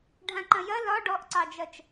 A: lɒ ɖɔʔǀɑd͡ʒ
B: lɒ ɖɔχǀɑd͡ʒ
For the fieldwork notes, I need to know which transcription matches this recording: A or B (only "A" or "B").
A